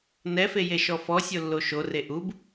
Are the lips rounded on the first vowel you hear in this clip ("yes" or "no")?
no